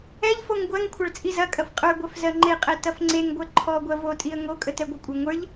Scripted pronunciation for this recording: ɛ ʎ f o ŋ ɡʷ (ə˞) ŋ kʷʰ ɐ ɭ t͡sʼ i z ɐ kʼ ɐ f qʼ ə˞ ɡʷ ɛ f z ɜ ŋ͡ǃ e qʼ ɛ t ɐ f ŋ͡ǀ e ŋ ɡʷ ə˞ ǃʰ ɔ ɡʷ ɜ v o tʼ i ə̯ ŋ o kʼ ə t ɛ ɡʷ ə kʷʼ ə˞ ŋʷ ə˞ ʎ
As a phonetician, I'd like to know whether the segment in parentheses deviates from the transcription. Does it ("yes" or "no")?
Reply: yes